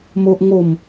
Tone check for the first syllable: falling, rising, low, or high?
high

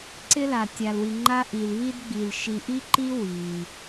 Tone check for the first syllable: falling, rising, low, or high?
high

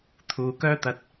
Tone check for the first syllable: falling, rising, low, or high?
low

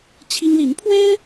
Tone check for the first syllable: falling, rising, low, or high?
high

